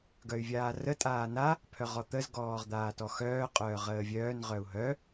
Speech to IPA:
ɡ œ y̯ vʲ aː r ə tʼ aː n a | pʰ œ ʁ ɔ t̪ ə z ɡ ɔː ʁ d̪ aː t ɔ x œː qʼ œː ʁ əː vʲ œː n ʁ œ u̯ ɦ œ

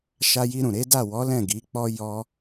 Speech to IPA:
ʃ a˧ j i˧ ɾ ũ˨ ɾ e˨˦ d a˦˨ w ɔ˨˦ l ɛ̃˦˨ ɡ i˨˦ k͡p ɔ˦ j ɔ˦

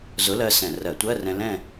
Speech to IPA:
z ʊ˨˥ l ɜ˧ s ɛ̃˧˩˧ r ɜ˧˩˧ tʷ ɜ˧˥˧ r ɛ̃˧ l ɛ̃˥˧

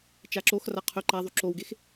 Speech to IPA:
t͡ʃ a ǁ o x r a qʰ œ ǃ a ðˤ y ǁ o w ɡ e x

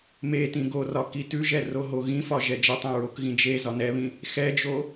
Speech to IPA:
m e t ĩ ɡ o r ɒ k i t ʉ ʒ ɛ r o ɦ o ɣ ĩ f ɒ ʒ ɛ d͡ʒ ɛ tˤ ẽ ɹ o k ɣ ĩ d͡ʒ e z ɒ n ɛ β ĩ | x ɛ d͡ʒ o

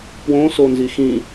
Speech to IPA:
p w õ s o n z i x ĩ

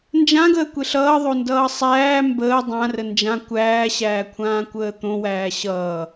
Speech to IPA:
n d͡ʒ ã ɡ əː kʷ e ɬ ʌː ðˤ o n d ʌː sˤ æː m b əː dˤ ã r ə n d͡ʒ ã kʷ æː ɕ æː kʷʰ ãː kʷ əː t̪ õ w æː ɕ ʌː

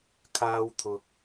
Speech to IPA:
kʰ aː˧ w t̪ʰ ʊ˨ k̚

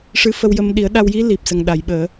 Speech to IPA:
ʂ ɨ˧˥ f ə˧ w j ə˧ m ɗ i˨˩˦ ə̯ ɗ a˧ w j i˧˥ l i˨˩ p̚ s ə˨˩ ŋ ɗ a˨˩˨ j ɓ əː˨˩˦

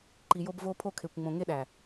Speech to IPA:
ǃ i˨ j o˧ b v o˧ pʰ o˧ kʰ e˨ kʷ ŋ͡m õ˨ ŋ e˧ ɗ æ˨

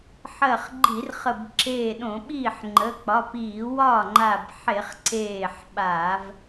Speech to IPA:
ħ ɜ˧˩ χ ɡ͡ǃ i˧˩˧ r χ ə˧˩ b ǁ eː˧˩ ɗ õ˧˩˧ ɓ iː˥˩ ħ ŋ͡ǃ ə˩˧˩ k͡p ɒ˩˧˩ p iː˧˩˧ w ɒ˥˩ ŋ͡ǃ a˧˩ b ħ e˧˩˧ χ ǀ eː˧˩ ħ ɓ a˧˩˧ v

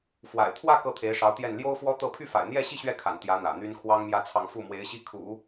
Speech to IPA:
f w a̰˨˩ ɪ̯ t̪ʰ w ä˥˧ k ɤ˥˩ t̪ʰ e˧˥ ɪ̯ ʂ ɑ˧˥ ʊ̯ t̪ j ɛ˥˩ n l j o˥ ʊ̯ f w ɔ˥ t̪ ɤ˥˧ pʰ y˥˩ f a̰˨˩ ɪ̯ n̪ j ɛ˥˧ ɕ i˥˧ ɕ ɥ ɛ˥˩ kʰ a̰˨˩ n t̪ j ä˧˥ n̪ ä̰˨˩ n̪ y˥ n kʰ w ɑ˥ ŋ m j ä˥˧ t͡sʰ ɑ˥˧ ŋ f u˥˩ m w e˧˥ ɪ̯ ɕ i˥˩ kʰ ṵ˨˩˦

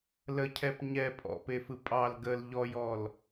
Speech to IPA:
l ə cʰ ɛ p ɲ ɛ pʼ ɔ̰ p e f ɯ pʼ ɑ l ɡ ə l ʎ ɔ j ɔ l

